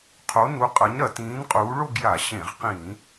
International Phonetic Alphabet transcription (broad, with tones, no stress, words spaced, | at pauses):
qʰo˨˥nu˨˥qʼɐ˨˥ɲ ɾɐ˩˧tĩː˨˥nqʼuː˨˥ ɭo˥˧ɡja˧˩˧ɕẽ˧˩˧ʁqĩː˧˩˧